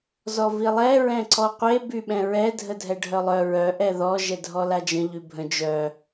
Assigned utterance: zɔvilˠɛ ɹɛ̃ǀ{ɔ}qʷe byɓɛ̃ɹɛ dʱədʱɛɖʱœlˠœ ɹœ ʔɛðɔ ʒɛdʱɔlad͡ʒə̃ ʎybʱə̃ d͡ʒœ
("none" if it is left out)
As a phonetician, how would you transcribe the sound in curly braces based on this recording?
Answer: ɔ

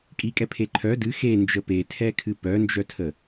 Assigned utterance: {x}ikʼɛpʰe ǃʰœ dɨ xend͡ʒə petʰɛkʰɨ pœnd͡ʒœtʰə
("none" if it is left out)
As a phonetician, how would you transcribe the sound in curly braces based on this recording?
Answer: kʼ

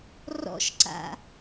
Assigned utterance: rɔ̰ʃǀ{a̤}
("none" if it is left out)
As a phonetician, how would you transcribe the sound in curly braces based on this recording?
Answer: a̰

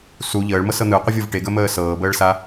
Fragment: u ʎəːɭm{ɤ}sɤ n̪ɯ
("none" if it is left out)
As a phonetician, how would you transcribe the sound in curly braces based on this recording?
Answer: ɤ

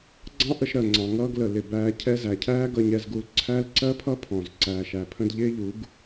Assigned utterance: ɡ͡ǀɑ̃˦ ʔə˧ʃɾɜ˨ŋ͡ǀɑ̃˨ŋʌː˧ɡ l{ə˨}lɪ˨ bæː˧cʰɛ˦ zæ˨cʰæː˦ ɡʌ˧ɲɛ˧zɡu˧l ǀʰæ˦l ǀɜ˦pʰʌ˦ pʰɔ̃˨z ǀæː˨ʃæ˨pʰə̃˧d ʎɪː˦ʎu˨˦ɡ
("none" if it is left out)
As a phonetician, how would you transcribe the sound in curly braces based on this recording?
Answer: ə˨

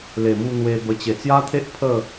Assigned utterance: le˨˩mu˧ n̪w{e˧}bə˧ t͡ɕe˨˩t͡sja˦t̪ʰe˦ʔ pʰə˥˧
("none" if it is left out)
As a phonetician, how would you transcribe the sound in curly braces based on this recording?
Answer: e˧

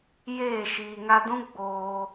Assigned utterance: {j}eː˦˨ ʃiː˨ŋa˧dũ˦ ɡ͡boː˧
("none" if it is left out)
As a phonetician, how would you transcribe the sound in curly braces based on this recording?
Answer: j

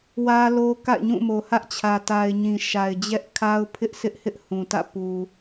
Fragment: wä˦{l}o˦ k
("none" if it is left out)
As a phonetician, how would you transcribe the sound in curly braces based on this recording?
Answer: l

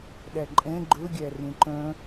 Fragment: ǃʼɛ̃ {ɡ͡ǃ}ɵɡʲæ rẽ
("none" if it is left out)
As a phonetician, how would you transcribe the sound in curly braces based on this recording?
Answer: ɡ͡ǃ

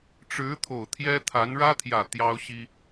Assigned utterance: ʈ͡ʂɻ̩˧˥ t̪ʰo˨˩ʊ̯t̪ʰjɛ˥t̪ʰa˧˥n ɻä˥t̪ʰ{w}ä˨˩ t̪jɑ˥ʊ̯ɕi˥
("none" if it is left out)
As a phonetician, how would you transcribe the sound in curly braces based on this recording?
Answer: j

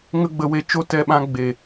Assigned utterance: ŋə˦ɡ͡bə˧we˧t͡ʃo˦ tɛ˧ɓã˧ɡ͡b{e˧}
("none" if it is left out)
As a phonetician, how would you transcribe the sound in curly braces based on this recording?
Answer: e˨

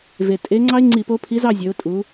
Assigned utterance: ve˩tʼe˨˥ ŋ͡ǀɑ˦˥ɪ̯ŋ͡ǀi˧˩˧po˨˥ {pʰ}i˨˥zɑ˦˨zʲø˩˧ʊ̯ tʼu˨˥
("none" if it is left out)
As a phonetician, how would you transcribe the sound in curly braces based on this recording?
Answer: pʰ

